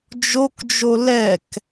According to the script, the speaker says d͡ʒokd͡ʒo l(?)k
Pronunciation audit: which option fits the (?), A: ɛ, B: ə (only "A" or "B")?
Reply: A